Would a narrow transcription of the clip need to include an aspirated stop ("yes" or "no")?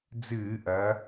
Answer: no